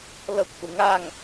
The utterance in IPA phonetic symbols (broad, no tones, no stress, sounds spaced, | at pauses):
l ɤ kʷʰ ɯ ŋ a ŋ